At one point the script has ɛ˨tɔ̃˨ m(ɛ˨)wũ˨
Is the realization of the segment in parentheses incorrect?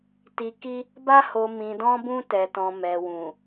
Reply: no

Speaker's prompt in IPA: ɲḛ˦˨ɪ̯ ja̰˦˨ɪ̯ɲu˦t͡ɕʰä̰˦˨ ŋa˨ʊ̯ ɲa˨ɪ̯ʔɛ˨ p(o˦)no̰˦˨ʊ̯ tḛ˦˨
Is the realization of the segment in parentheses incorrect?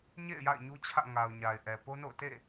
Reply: no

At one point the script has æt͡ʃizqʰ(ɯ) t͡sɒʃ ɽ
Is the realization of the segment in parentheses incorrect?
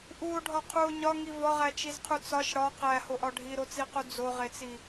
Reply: yes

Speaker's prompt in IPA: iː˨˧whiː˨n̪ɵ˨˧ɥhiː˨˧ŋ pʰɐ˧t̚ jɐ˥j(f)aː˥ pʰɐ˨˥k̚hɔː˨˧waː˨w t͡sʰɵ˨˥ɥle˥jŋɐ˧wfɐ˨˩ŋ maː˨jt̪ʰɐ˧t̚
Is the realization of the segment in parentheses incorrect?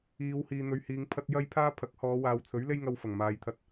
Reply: yes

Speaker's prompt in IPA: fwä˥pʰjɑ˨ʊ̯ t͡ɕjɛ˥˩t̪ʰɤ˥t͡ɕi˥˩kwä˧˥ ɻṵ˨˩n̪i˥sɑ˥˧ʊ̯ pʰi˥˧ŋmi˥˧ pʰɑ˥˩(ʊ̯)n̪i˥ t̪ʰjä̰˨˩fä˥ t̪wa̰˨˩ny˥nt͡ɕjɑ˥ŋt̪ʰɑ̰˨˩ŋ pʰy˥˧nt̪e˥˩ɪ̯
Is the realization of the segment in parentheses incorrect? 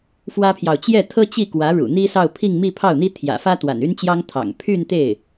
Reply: no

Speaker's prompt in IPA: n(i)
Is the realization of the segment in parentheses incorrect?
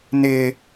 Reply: yes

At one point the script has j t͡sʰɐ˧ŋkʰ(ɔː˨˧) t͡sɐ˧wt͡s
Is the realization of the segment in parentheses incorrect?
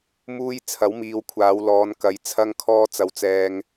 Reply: yes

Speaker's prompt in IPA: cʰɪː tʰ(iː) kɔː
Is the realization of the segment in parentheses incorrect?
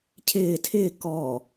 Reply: yes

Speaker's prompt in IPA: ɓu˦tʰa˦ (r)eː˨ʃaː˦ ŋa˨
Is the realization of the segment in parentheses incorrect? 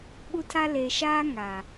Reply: yes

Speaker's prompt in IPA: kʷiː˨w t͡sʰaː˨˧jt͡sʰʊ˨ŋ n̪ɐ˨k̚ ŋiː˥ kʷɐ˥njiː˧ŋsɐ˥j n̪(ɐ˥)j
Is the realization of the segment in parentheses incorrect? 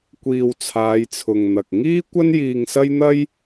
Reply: no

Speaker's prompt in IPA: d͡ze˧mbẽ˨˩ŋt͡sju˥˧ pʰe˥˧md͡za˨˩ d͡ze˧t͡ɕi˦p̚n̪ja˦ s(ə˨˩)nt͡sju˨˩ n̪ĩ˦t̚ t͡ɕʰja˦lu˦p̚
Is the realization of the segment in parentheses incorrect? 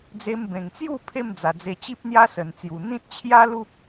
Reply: no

